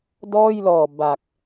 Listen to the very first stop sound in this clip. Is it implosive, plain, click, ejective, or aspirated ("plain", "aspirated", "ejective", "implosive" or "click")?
plain